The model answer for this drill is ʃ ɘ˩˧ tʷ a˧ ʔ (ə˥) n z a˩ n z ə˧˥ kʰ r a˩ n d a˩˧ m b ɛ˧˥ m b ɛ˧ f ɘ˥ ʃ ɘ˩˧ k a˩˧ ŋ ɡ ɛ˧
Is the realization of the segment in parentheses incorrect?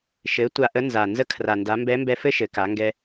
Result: yes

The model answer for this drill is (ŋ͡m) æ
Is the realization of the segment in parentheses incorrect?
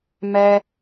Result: yes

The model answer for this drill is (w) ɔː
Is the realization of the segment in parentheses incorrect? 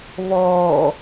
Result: yes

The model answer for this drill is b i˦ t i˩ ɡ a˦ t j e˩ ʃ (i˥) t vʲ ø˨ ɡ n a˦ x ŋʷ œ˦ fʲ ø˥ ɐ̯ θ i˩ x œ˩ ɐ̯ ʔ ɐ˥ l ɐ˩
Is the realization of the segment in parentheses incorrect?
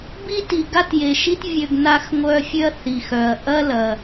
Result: no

